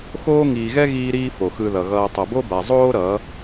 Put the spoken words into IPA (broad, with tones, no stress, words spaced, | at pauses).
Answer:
xoː˦ ŋiː˨ɣɛ˦ ɣiː˦ɾiː˦ fo˨xɯ˧ðʌ˨ɣʌː˧ tˤʌ˨bo˦ba˨ zˤoː˦ ɾʌ˨˦